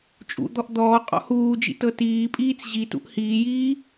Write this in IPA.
t͡ʃʼ ṵ d̪ ɔ ʔ d̪ ɔː qʼ ɔ̰ h uː d͡ʒ ḭ t ɤ t iː pʼ iː t͡s ʑ i t ṵ ʔ h iː j iː

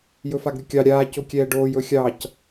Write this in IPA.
j ɵ f a ɡ ɾʲ ʊ kʲ ɑ ɾʲ aː c o kʲ ɛː ɖ oː j ɵ xʲ ɑ c

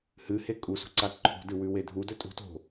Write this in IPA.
h ɨ h e kʼ u s ṳ ǀ a ǃʰ ṳ d ɨ w ʉ w e dʱ u d ɵ tʼ ṳ t o̤

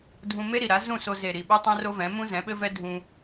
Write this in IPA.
dʱ ũ˧ m e˦ ɾ i˨ ɾ a˨˦ z ũ˦˨ s o˧ z e˨ ɾ i˨ ɓ u˦ tˤ ɛ̃˦ r o˦ v ɛ̃˨˦ m ũ˦ z ɛ̃˨˦ ɓ ɘ˦ v ɛ˦ dʱ ũ˧

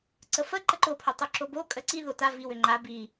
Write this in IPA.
ǀ ə f ə ǃ ə ǃ o pʰ o tˤ o ǁ o b o kʼ ə ǀ i ð o t a v i w ʏ ŋ͡ǃ a b i

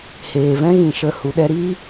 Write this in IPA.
h eː˨ v ɛ̃˦ ɣ ĩ˨ ʃ ə˧ h u˨ ɗ ɛ˧ ɾ iː˦

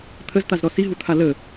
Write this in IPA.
t̪ʰ ə z t̪ a z ɾ ɔ s i ɦ u t̪ʰ a l ə

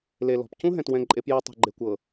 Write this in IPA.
l e˨ l ɔ̤˨ p c ũ˦ ɦ ɛ̃˨ t w ɛ̃˨ ǃʼ e˦ p j ɛ˦ tˤ ɛ̤˨ ɡ͡ǃ e˨ kʷ ɤ˨

